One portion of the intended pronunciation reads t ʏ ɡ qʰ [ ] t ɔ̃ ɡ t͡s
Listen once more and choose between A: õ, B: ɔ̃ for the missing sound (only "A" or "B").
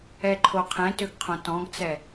A